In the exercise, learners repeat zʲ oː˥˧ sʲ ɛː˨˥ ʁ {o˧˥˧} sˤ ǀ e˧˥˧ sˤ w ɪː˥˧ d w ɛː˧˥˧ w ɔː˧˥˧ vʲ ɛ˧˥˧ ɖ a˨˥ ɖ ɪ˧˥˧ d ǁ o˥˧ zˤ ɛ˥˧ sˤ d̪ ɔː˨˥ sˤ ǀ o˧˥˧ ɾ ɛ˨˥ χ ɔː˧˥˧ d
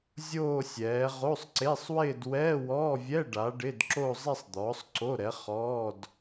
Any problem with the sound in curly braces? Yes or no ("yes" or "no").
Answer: no